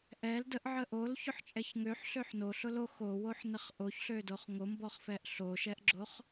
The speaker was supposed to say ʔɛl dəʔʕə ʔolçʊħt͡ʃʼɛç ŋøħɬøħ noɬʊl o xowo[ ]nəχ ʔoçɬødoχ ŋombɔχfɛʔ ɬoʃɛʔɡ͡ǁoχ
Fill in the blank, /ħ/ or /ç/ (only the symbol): ħ